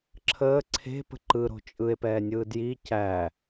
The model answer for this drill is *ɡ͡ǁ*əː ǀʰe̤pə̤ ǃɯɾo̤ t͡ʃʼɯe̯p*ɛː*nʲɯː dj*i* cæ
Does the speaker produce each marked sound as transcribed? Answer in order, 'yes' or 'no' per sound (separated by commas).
no, yes, yes